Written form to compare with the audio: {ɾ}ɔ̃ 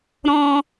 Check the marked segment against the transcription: correct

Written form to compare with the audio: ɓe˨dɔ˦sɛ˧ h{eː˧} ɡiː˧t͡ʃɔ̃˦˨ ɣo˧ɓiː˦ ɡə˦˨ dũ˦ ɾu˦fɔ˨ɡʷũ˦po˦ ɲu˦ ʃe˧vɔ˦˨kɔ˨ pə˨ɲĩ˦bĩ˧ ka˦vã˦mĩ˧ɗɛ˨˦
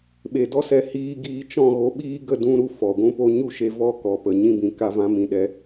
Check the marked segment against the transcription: incorrect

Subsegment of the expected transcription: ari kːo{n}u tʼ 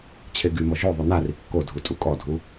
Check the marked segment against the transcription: incorrect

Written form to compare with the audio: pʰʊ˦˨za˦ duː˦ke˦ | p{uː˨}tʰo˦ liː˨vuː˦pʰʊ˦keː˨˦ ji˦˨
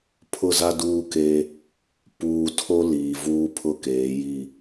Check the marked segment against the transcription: correct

